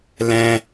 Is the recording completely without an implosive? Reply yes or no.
yes